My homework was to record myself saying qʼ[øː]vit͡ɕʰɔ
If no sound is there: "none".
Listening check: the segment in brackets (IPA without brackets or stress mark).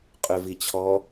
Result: ø